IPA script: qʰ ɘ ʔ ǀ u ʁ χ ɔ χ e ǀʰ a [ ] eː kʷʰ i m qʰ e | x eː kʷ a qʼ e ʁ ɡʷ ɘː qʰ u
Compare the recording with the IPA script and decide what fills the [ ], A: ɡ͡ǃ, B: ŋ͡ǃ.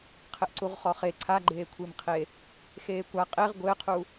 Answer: A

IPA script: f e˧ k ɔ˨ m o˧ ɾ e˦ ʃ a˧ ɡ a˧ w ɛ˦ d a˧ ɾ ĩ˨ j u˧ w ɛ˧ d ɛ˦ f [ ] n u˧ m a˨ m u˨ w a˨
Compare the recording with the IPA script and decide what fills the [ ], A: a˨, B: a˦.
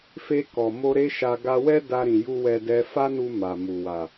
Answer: B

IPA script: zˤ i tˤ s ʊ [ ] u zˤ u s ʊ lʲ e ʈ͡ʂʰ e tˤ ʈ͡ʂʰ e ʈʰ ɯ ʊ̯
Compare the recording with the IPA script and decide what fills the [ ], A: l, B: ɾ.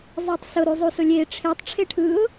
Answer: B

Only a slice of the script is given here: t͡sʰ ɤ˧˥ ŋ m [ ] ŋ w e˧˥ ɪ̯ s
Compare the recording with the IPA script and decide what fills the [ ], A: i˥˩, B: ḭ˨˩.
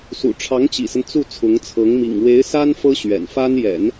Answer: B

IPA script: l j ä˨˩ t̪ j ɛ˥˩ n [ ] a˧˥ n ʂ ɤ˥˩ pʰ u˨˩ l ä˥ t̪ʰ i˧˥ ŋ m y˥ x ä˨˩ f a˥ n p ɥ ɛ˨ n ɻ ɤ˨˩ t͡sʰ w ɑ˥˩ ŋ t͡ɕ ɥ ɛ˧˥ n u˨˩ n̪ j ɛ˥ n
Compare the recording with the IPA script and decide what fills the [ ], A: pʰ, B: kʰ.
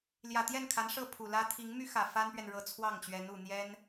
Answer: B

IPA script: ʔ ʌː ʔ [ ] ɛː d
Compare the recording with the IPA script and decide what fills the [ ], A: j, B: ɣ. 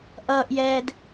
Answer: A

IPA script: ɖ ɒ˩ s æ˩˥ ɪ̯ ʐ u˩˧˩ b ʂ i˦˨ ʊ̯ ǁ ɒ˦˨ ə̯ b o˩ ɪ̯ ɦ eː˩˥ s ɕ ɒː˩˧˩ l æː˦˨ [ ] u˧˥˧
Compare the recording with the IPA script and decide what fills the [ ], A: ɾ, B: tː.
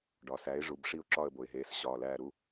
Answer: A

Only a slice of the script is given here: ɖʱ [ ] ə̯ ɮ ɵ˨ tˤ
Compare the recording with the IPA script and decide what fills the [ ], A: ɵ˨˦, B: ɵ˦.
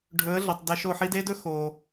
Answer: A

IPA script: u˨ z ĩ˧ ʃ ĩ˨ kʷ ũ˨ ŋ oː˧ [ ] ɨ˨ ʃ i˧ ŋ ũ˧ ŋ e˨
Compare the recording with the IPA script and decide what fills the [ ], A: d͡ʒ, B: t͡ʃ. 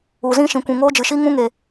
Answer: A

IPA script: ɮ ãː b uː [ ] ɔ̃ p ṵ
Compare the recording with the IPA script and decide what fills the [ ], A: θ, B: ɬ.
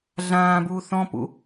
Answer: A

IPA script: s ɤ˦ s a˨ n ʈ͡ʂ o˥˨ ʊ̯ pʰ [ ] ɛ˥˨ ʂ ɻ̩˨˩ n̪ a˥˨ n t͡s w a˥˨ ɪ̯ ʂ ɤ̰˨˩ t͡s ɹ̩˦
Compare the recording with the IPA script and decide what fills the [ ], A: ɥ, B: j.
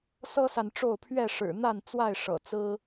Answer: A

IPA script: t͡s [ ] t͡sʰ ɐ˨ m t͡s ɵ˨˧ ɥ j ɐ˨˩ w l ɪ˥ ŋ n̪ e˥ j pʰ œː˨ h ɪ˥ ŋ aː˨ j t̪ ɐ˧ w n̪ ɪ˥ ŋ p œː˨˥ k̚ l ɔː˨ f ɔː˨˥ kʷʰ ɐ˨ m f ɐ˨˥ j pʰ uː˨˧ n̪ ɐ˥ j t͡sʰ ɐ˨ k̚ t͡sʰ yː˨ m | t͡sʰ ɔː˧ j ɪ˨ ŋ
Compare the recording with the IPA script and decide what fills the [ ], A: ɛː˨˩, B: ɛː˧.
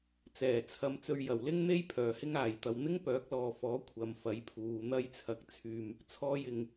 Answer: A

